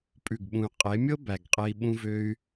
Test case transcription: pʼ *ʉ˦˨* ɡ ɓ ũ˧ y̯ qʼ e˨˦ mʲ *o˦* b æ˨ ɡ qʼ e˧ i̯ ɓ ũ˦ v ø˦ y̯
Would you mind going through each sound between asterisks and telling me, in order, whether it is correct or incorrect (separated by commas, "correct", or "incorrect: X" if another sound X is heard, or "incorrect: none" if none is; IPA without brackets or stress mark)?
correct, incorrect: ɤ˦